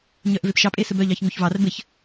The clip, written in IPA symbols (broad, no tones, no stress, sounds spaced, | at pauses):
ɲ œ ʔ v e p ʃ ɑ pʼ e s ɘ b œ ʎ ɑ ç ŋ u ç v ɑ r b ɘ ç